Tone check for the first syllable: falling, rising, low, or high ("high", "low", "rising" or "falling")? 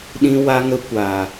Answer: high